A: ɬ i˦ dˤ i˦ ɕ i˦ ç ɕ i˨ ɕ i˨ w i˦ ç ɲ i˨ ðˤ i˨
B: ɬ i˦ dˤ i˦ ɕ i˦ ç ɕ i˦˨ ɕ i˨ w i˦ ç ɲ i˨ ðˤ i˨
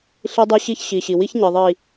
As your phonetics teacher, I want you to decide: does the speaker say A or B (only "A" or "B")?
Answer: A